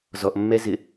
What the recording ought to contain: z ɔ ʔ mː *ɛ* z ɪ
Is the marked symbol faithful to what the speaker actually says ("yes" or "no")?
yes